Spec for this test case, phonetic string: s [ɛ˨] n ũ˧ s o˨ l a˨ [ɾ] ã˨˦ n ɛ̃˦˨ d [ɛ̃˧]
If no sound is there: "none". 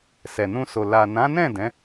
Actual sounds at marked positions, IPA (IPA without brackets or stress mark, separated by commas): ɛ˨, n, ɛ̃˨˦